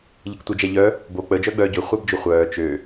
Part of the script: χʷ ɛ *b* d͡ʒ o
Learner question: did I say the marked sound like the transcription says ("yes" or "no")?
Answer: yes